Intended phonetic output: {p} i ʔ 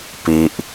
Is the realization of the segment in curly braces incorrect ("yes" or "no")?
no